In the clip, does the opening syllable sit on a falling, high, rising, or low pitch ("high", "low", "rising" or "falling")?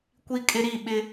high